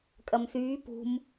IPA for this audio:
kʼɐmθyː pṳm

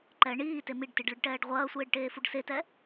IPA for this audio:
ǃɛ ɳiːte miɖtiɖɭɨɖʈɛːɖ ʁʷɐːsʷeːɖʈeːfuɖ setɛ

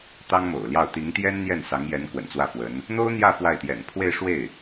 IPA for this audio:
t̪ɑ˥ŋmo̰˨˩ʊ̯ljɑ˥˩ʊ̯ t̪i˧˥ŋt̪jɛ˥nn̪jɛ˥˩n sɑ˧˥ŋjɛ˧˥n kwə̰˨˩nt͡swä˥˩fwə˧˥n | n̪o˥ʊ̯n̪jä˥˧ fwa˥˩ɪ̯t̪jɛ̰˨˩n pʰwe˥˧ɪ̯ʂwe˥˩ɪ̯

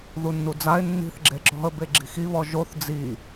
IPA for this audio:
ðunːud͡zaɪ̯ nːi̤θ ɡ͡ǁeǁɔ̤ə̯ beɡ͡ǁi̤xiβɔ ʒoθ d͡zi

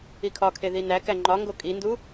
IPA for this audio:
ikʰɒkʰe ðinækæ ŋ͡ǃɒŋɡo kʼindu

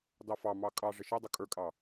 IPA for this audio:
dɑfɑmɑ kʼɑʐɪ ʃɪ dˤukʼə˞kʼɑ

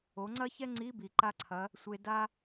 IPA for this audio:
o˩˧ŋ͡ǀɐ˥çɛ˥ ŋ͡ǀi˧˥bi˩ǃa˧ǀʰɐ˩˧ | sʷe˧da˥

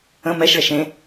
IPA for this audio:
ə̃ mɛʃɭɛʃ ẽ

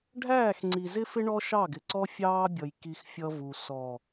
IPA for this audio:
ɖʱæː˦˨xŋ͡ǀi˨zɪ˦fɪ˦ ɳɔ˦ʃɑ˦˨ɡɪ˨ǀɔ˦ fʲɑː˦bʲʌ˨j ki˦xfʲʌ˦vu˨ sɔ˨

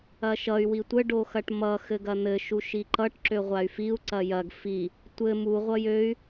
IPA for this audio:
ɐʃʌy̯ witʷə ɖoxɐʈmʌ xɘɡɐn̪ɘ ʃuʃiǃʌʈ ǁøʁʷay̯fiu̯ ǀɐjɐɡ fi | tʷɘ mu ʁʷʌjøy̯

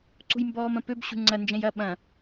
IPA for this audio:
ǀṳjmbɔːmɐ̃pøb ɕṳŋ͡ǀɐ nd͡ʒɛ̃jɐ ɓɐ̃

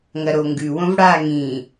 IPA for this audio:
ŋɐɾoŋɡʉ wõvɽaːŋĩː

